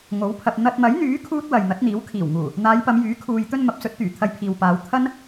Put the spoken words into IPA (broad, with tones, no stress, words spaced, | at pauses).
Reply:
ŋo˨˥wpʰɐ˨p̚ n̪ɐ˨t̚mɐ˨˥jn̪yː˨˥ kʰuː˥t̚wɐ˨j n̪ɐ˨˥t̚n̪iː˨˥w kʰiː˨˩wŋuː˨˩ | n̪aː˨˧jpɐ˨˧mjyː˨˥ kʰuː˨j t̪ɵ˧n mɐ˨˥p̚sɵ˨˥t̚t̪yː˨˩ t̪ʰɐ˧jpʰiː˨wpaː˨˧w t̪ʰɐ˥n